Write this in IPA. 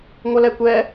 ŋʷʌlɛkʷɛ

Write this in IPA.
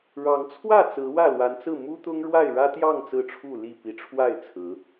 ɻɑ˨˦ŋ t͡sʰwä˥˨ t͡sɹ̩˨˦wä˥˨lwa˨˦nt͡sɹ̩˥˨ mu˦t̪ʊ˦ŋɻwa˥˨ɪ̯ ɻä˦t̪jɑ˥˨ŋ t͡sɹ̩˥˨ʈ͡ʂʰu˥˨li˥˨ pi˨˩ʈ͡ʂʰwa˥˨ɪ̯ t͡sʰɹ̩˨˦

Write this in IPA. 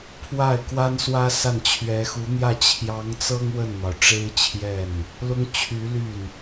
pʰwa˥˩ɪ̯kwa˥n swä˥sa˥˩nt͡ɕʰɥɛ˧˥ xu˧˥n̪jä˥˩ t͡ɕʰjɑ˧˥ŋt͡sɤ˥ŋ wə˥˩nn̪ɑ˩ʊ̯ʈ͡ʂe˥ɪ̯t͡ɕʰjɛ˥˩n | lʊ˥ŋ t͡ɕʰy˧˥ ly˥˩n

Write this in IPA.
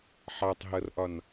ħɑtˤɦʌrʔɒn

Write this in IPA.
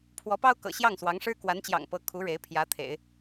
pʰwɔ˧˥pɑ˥ʊ̯ kɤ̰˨˩ɕjɑ˥˩ŋswɑ˧˥ŋʂɻ̩˥ kwa˧˥nt͡ɕjɑ̰˨˩ŋpɤ˧˥ kʰu˧˥ ɻe˧˥ɪ̯ pʰjä˧˥t̪ʰḛ˨˩˦ɪ̯

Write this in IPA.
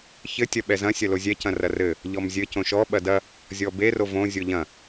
çɘ tʲɐɓɛzɐ̃ sʲɐlozʲɛ cɐ̃rɐrɘ | ʎɔmzʲɘ cõʃɔ ɓɐdɐ | zʲɔbe rovõ zʲoʎɐ̃

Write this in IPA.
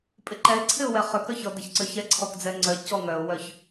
pʼɪǃɛɪ̯ǀʰɪʊ̯wɛ χøkœ çɔdɛçǀøçɛ ǀʰɔkd͡zɛŋ͡ǀœ cɔŋœʊ̯wœç

